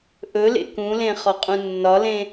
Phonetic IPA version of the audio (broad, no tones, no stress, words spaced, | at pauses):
ʔɵlḛ kũlẽ χɒqʼũnːɒlẽ